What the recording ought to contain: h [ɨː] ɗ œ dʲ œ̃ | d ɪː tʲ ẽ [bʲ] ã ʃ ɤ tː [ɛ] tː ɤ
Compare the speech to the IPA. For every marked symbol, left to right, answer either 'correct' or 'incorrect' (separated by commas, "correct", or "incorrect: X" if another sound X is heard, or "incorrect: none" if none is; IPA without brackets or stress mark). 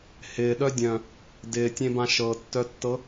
incorrect: ɪː, incorrect: b, incorrect: œ